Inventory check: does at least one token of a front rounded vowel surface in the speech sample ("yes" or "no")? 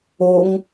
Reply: no